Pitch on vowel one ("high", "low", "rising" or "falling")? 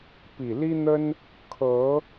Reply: low